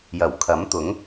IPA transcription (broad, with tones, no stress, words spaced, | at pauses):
jɐ˨˩wkʰɐ˨˥mt̪ʊ˨˥ŋ